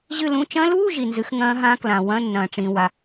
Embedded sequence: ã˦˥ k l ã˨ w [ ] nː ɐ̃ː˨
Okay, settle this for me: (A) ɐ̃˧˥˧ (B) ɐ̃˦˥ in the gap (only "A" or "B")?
A